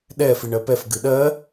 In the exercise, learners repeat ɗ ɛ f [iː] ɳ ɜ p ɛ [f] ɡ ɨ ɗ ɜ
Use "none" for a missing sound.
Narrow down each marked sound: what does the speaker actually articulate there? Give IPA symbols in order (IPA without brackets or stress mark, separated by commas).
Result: i, f